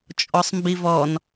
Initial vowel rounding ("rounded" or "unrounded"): rounded